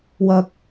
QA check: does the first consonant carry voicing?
yes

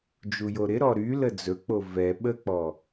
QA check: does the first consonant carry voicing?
yes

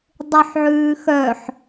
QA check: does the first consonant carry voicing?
yes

